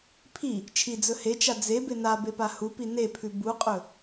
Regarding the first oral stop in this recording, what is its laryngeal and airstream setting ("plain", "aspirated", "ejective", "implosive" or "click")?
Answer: aspirated